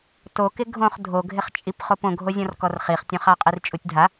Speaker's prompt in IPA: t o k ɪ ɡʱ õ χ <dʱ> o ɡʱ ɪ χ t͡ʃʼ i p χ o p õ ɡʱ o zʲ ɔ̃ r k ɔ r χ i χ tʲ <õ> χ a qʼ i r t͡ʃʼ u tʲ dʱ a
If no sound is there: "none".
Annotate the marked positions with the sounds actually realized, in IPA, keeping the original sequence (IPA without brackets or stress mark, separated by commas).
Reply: dʱ, õ